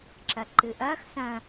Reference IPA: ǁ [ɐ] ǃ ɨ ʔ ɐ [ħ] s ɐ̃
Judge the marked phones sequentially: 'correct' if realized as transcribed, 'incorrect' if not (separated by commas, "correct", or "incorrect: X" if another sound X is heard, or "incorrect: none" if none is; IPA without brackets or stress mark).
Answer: correct, incorrect: x